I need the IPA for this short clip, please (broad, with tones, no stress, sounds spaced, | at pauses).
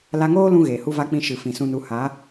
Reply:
l a˧ ŋ oː˦ l ũ˧ ɣ eː˨ h u˦ v a˦ k͡p ĩ˦˨ ʃ ɨ˨ f ĩ˨ s ũ˧ n u˨˦ h a˨˦